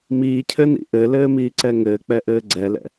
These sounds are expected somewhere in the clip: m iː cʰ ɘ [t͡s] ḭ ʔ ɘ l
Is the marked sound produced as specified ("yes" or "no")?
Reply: no